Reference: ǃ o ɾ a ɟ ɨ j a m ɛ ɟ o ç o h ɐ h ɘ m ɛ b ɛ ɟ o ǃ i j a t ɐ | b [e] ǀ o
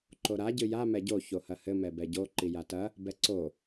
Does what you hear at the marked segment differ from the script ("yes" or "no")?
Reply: yes